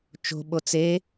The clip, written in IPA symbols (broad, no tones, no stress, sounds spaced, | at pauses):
t͡ʃ o̤ ɓ o t͡s e